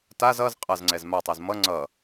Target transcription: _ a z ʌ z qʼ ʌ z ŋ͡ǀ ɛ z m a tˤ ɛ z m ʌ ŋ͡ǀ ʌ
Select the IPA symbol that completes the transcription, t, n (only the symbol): t